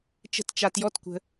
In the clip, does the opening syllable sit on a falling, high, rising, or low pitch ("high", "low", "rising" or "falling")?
high